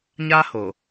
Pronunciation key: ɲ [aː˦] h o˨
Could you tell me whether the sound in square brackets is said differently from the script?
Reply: yes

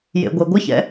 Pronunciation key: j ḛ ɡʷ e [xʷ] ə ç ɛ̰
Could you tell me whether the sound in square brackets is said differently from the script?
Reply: yes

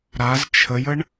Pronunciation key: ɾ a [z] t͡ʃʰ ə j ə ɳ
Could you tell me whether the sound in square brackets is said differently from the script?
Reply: no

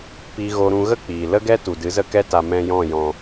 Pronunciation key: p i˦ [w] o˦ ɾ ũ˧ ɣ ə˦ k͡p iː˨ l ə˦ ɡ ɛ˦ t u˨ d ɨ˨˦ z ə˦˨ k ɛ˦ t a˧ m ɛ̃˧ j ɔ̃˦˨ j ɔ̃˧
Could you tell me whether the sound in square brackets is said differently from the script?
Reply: yes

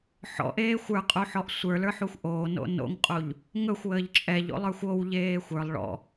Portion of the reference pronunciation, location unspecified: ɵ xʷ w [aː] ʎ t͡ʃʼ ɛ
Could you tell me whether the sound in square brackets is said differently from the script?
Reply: yes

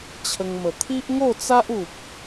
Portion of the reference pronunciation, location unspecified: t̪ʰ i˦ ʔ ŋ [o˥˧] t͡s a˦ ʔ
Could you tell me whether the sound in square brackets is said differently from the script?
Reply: no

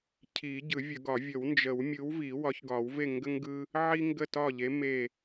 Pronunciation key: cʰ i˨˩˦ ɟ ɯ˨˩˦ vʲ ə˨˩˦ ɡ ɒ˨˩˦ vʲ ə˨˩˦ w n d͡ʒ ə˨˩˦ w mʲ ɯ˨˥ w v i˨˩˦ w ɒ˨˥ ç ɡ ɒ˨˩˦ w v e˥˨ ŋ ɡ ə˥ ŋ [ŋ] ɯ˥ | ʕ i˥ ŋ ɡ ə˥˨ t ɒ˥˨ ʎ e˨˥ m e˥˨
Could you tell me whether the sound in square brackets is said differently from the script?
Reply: yes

